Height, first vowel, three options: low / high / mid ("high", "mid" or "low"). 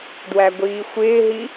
low